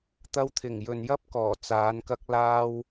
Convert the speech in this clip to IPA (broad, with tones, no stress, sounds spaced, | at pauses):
t̪ ɐ˧ w t̪ʰ ɪ˨˩ ŋ j ɵ˨ n j ɐ˥ p̚ k ɔː˨˩ t͡s aː˨˧ n k ɐ˧ k̚ l aː˧ w